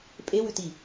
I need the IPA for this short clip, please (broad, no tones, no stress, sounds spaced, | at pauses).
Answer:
pʼ e w ʉ t i